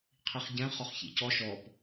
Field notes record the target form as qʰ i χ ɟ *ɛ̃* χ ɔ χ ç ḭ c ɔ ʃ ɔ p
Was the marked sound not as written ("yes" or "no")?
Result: no